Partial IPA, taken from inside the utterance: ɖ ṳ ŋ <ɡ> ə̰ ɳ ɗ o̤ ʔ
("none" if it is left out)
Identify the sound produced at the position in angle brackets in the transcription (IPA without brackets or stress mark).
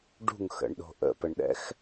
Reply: x